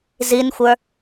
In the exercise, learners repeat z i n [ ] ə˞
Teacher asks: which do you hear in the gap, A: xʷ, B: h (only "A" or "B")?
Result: A